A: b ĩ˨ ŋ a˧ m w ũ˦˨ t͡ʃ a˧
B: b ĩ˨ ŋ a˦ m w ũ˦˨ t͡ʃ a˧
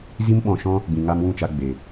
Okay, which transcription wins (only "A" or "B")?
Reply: A